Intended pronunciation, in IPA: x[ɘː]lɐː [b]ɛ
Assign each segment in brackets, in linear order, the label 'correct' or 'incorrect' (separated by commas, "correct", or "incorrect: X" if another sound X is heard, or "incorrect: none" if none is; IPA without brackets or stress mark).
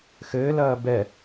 correct, correct